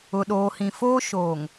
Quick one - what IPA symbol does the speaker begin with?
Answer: ʊ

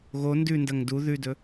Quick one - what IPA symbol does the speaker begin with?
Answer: ɣ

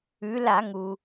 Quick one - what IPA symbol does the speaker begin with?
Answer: ʉ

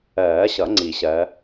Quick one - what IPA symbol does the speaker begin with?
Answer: ɜː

